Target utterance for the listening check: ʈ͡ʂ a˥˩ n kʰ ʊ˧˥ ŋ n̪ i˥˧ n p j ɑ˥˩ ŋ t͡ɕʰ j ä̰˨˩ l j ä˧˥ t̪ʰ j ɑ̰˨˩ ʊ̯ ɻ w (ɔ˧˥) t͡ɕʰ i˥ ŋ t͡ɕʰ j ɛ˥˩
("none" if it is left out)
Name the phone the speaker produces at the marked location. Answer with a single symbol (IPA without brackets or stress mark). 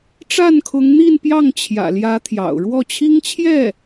ɔ˥˩